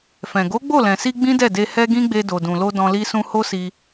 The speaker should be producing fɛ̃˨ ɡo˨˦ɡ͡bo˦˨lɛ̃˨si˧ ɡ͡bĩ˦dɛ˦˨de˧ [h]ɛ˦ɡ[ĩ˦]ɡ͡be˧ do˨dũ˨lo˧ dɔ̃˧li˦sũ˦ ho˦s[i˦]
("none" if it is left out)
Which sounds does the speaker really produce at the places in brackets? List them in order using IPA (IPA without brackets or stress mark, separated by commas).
h, ĩ˦, i˧